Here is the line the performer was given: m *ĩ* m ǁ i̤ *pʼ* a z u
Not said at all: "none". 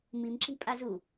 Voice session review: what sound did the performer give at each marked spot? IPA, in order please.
i, pʼ

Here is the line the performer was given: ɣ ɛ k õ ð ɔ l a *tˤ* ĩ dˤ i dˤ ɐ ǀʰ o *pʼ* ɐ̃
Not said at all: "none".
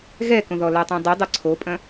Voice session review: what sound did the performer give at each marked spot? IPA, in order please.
tˤ, pʼ

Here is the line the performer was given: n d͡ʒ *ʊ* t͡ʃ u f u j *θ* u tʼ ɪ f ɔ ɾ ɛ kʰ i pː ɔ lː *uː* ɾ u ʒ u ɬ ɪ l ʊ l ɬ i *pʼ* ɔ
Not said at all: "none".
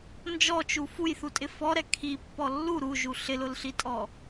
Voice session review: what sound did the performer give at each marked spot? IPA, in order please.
ɔ, θ, u, tʼ

